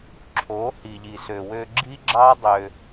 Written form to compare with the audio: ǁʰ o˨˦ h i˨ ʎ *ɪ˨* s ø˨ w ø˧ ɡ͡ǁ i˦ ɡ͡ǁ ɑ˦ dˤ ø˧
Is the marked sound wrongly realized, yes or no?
yes